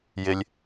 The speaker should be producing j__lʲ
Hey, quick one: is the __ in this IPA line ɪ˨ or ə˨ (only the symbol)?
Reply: ɪ˨